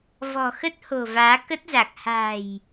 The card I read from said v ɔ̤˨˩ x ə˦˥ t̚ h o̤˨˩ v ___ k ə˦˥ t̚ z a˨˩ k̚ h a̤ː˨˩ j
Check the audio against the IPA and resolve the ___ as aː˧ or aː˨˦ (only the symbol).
aː˨˦